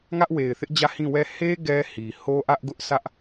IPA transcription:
ŋ ä˦ ʔ w e˨ ɪ̯ θ ɪ˦ ʔ d͡ʑ ä˦˨ h ĩ˦˨ w ɛ˦˨ h e˦ ɡ ɛ˦ h i˨ h o˦ ʔ ä˦ ʔ ɡ ʊ˦ ʔ sʰ ä˦ ʔ

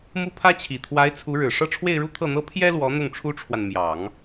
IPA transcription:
m u˥˩ pʰ ä˥ t͡ɕʰ i˨˩ t̪ʰ w a˧˥ ɪ̯ t͡sʰ u˧˥ ɻ ɻ̩˨˩ ʂ ɤ˥˧ ʈ͡ʂʰ w e˥˧ ɪ̯ ɻ u˥˧ t̪ʰ ɤ˥˩ n̪ ɤ˥ pʰ j ɛ˥ l w ɔ˧˥ n̪ ʊ˥˩ ŋ ʈ͡ʂʰ u˥ ʈ͡ʂʰ w a˨ n m j ɑ˨˩˦ ŋ

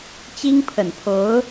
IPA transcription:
t͡ɕ i˥ ŋ pʰ ə˨˩ n pʰ o˧˥ ʊ̯

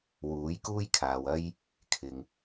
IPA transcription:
w uː˨˥ j k uː˥ j kʰ aː˨ w ɐ˥ j | kʰ ɪ˨ ŋ

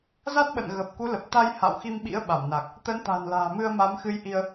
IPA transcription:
z a˦˥ t̚ ɓ ə̰˧˨ n ɣ ə˨˩ p̚ k u˨˦ l ə˨˩ p̚ t̪ a˧ j h a̰˧˨ w x i˧ m ɓ ḭ˧˥ ə̯ ɓ a˧˩ m n a˨˩ k̚ | t̪ ə˨˦ n t̪ a̤˨˩ n l a̤ː˨˩ m ɨ˧ ə̯ m a˨˦ m x ɨ˧ j ʔ i˧ ə̯

